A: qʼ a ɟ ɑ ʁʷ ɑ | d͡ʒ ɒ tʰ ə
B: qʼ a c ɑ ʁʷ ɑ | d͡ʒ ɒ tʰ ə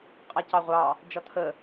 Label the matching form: B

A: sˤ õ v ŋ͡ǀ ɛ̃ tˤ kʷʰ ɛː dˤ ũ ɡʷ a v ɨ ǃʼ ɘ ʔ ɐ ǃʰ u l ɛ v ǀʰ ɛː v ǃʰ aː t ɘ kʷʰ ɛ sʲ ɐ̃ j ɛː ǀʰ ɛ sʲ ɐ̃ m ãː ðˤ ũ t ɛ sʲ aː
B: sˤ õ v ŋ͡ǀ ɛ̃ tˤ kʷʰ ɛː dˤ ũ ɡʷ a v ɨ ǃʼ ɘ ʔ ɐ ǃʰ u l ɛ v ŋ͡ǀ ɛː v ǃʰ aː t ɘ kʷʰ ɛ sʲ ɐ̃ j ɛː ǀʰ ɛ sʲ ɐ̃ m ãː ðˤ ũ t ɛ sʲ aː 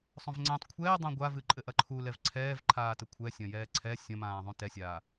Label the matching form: A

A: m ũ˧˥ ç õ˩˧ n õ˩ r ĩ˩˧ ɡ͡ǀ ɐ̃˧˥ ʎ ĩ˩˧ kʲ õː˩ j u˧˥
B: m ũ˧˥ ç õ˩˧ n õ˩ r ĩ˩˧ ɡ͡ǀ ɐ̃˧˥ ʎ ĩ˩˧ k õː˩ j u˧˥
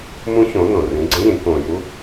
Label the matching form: B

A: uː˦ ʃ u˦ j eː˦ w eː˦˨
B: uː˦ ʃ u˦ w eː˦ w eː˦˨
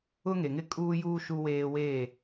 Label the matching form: B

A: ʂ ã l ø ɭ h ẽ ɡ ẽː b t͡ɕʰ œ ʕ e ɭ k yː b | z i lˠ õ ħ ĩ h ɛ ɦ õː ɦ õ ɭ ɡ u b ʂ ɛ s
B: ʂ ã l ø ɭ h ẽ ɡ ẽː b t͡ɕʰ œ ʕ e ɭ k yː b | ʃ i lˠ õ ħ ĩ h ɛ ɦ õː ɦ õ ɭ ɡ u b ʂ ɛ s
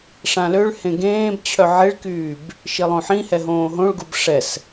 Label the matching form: B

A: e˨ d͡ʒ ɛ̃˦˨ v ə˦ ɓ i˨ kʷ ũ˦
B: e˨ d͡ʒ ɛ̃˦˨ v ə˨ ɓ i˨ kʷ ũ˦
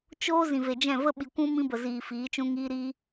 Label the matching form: A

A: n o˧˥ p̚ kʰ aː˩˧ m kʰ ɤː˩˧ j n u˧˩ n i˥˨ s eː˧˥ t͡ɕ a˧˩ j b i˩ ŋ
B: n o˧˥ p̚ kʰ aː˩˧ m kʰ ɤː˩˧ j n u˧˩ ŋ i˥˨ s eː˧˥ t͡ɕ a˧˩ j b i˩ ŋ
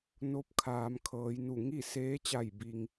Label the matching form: B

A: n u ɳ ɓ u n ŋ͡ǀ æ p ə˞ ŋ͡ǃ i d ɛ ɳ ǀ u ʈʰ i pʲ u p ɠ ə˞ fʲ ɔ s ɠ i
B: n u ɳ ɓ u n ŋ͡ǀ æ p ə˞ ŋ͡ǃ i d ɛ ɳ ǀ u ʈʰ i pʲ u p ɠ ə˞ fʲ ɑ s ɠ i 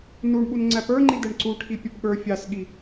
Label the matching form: B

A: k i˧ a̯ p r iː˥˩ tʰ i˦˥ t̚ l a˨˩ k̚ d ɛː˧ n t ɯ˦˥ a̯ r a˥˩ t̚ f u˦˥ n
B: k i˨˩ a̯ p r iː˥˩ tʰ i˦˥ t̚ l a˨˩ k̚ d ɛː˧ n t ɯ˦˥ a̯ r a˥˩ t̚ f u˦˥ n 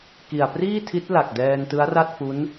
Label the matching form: B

